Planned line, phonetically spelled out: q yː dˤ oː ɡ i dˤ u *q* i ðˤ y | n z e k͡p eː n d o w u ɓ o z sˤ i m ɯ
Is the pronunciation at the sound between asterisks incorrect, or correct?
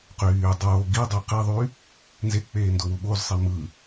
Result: correct